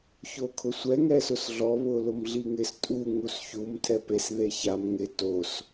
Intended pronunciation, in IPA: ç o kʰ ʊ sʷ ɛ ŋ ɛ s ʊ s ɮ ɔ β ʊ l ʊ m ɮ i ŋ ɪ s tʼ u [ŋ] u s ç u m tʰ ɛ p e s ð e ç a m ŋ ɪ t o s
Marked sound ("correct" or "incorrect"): correct